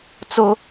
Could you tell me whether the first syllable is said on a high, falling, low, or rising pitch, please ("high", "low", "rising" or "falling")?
high